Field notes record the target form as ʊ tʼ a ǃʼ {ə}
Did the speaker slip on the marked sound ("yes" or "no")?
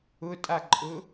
yes